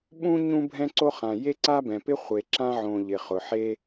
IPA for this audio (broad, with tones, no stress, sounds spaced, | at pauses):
ɓ ũ˥ ɲ ũ˥ bʱ ɛ̃˥ ǀ o˥ χ ã˩ j e˥ ǀ a˥ b ɛ̃˩ p ɪ˥ χʷ e˩ ǁ ã˥ ʕ õ˩ ʎ ɪ˩ χ ʊ˩ ħ e˥